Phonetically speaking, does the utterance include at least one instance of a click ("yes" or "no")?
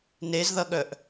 no